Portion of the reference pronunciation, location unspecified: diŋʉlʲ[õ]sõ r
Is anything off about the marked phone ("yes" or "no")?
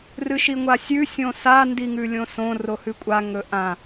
no